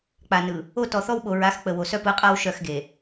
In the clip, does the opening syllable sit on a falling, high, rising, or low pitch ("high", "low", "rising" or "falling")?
low